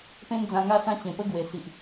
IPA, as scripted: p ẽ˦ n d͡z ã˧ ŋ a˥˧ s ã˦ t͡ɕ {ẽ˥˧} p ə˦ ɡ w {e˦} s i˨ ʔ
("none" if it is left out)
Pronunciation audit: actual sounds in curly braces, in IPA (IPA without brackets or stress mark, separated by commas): ẽ˨˩, e˨˩